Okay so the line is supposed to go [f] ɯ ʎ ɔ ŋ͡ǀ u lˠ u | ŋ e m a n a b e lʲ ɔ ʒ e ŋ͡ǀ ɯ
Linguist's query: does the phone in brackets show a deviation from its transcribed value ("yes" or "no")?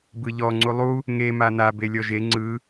yes